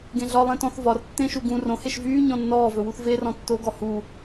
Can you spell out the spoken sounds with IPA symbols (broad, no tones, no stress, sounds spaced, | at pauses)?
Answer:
ɡ ẽ ɮ ɒ lˠ ẽ t ɔ̃ θ v ɒ r tː ẽ ʃ u ɡ ũ r õ h e ʃ v yː ɲ ɔ̃ nː ɔː v ɵ w u θ v e r ɔ̃ tː o ɡ ɔ h u